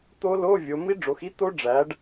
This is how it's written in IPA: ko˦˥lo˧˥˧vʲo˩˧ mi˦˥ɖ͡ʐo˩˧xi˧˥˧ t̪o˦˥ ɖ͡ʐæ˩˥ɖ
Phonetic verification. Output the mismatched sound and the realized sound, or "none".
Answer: k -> t̪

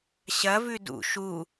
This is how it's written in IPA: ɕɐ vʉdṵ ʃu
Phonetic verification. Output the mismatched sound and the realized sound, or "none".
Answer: none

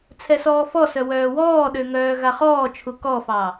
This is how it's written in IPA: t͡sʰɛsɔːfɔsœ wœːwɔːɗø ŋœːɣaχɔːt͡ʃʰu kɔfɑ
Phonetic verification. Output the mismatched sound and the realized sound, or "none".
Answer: none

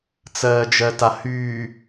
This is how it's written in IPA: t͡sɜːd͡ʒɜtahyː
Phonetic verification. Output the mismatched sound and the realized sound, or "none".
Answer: none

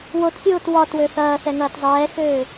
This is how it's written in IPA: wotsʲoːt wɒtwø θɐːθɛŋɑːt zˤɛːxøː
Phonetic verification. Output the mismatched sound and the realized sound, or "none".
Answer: ɑː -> ɐː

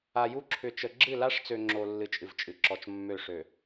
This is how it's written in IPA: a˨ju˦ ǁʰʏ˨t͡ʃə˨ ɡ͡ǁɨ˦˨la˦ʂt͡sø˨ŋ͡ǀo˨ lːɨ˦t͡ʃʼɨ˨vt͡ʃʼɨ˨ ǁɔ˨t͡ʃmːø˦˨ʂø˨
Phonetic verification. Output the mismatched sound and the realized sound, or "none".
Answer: ŋ͡ǀ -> ŋ͡ǁ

